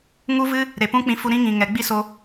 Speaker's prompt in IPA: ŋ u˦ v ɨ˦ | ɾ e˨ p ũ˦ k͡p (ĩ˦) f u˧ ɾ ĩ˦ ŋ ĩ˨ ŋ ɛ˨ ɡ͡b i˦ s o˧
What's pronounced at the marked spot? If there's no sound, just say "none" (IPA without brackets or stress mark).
ĩ˧